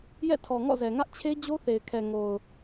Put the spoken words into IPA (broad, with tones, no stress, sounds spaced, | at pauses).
j ɛ̰˦˨ tʰ ɔ˨ ŋ ɔ̰˦˨ z ɛ˨ ŋ ä˦ ʔ t͡ɕʰ e˦ d͡ʑ o˦ θ e˨ ɪ̯ kʰ ɛ˨ ŋ o˨ ʊ̯